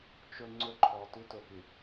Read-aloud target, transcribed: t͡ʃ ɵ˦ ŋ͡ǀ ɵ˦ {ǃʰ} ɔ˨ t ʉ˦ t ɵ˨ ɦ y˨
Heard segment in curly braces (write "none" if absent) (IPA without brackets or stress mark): ǃʰ